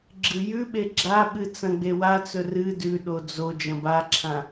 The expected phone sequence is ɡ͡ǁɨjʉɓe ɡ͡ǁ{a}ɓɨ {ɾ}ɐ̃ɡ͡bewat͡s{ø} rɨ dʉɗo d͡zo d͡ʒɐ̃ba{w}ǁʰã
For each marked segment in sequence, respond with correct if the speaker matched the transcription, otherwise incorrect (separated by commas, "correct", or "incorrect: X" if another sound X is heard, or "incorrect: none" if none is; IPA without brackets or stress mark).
correct, incorrect: t͡s, incorrect: ɵ, incorrect: none